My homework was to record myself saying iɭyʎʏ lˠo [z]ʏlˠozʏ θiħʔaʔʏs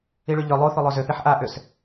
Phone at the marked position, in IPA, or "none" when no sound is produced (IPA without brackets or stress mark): θ